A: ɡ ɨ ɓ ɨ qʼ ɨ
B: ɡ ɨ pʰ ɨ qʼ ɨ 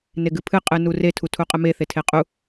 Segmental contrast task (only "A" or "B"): B